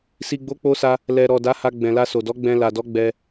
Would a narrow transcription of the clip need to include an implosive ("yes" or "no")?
no